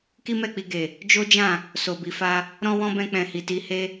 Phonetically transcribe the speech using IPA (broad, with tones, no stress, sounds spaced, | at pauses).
k i˦ m ɛ˦˨ k͡p i˧ ɡ e˨ | d͡ʒ o˦ d͡ʒ ã˦˨ | s o˨ b i˨ f a˧ | ɾ ɔ̃˦ w ɔ̃˦ b ɛ̃˧ k͡p ɛ̃˨ h i˨ t i˧ h e˦